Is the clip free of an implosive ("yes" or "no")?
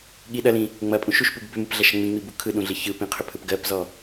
no